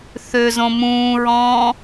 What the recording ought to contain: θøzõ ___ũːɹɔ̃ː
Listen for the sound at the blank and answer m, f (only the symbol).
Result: m